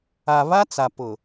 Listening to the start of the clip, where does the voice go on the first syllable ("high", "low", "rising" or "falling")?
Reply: low